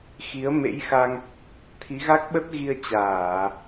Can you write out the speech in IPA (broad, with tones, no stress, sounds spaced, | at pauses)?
x i˨˦ ə̯ m ḛ˧˥ j x a˧ ŋ | t̪ʰ i˨˦ ɣ a˦˥ k̚ ɓ ə˦˥ t̚ ɣ i˧ ə̯ t͡ɕ aː˧˩˨